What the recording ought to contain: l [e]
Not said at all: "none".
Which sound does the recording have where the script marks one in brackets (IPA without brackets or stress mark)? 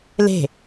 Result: e̤